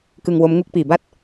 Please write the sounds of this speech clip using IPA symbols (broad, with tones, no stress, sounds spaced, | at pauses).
k ɯ˧ ŋ w o˦˥ m ŋ u˦˥ k̚ p iː˨˩ b a˥˩ t̚